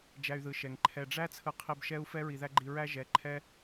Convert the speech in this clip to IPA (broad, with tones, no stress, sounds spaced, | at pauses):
d͡ʒ æ˧ y̯ ð ɯ˨ ʃ ɛ˨ ŋ ǃʰ ɛ˨ ɖ͡ʐ æ˦ t͡sʰ ɯ˧ qʰ i˧ b ʃ ɛ˦ u̯ f ɛ˦ ɹ i˨ ð æ˦ ɡ͡ǃ i˧ ɹ æ˦ ʒ ɛ˨˦ ǃʰ ɛ˦